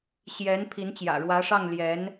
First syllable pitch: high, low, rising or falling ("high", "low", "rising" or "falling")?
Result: rising